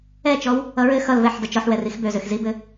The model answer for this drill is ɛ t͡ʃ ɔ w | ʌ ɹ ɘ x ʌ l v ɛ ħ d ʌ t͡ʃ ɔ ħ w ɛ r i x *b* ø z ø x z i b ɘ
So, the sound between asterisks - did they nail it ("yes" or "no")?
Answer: yes